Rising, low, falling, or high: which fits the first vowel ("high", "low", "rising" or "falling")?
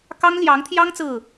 high